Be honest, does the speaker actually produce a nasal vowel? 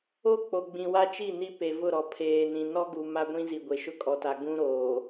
yes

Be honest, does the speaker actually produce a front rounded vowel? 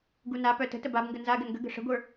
yes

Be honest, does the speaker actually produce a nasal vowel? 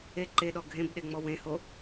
yes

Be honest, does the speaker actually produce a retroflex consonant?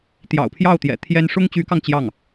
yes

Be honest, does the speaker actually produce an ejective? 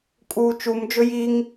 yes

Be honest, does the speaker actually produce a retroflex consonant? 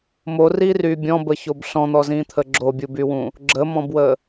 no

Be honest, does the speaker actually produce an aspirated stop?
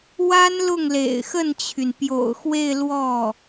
yes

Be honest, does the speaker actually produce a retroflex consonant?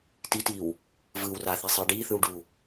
yes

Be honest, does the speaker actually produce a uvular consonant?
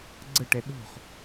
yes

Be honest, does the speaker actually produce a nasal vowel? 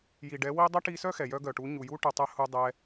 no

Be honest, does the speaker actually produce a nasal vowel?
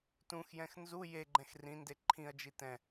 yes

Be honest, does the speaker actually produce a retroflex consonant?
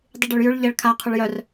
yes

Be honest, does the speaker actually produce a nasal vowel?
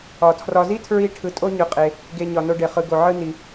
no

